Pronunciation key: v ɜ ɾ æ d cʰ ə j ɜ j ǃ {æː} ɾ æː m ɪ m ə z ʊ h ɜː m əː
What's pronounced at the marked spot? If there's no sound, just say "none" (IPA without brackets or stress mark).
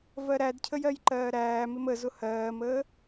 ɜː